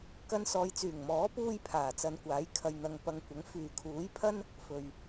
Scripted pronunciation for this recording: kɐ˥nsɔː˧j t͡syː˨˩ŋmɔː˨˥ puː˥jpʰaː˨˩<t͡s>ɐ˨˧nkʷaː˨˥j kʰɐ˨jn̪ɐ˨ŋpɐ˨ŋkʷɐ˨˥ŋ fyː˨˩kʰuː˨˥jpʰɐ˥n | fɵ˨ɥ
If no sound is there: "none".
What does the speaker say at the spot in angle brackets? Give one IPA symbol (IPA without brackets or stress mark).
t͡s